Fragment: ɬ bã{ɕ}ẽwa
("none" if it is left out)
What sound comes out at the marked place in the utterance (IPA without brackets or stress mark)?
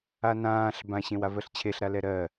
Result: ɕ